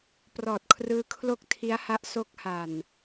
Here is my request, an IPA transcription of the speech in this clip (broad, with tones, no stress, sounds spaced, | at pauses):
p r ɔː˨˩ t̚ kʰ r ɯː˧ kʰ l o˥˩ k̚ tʰ i˦˥ a̯ h a˦˥ ʔ s o˦˥ k̚ h a˨˩ n